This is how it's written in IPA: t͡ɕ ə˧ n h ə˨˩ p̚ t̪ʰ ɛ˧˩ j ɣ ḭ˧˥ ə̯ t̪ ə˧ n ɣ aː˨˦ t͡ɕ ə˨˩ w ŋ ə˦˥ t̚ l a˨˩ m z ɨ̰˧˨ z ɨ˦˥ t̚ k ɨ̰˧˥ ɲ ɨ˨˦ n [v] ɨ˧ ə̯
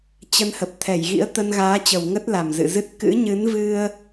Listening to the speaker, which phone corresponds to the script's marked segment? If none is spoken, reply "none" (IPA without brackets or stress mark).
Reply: v